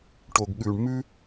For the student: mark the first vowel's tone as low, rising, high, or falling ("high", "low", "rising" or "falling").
low